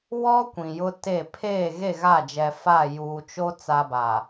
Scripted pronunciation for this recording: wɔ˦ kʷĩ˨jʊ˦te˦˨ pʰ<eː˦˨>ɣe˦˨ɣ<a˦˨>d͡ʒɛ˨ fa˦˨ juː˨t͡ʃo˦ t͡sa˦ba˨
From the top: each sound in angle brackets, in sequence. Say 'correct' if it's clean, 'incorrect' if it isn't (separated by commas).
correct, correct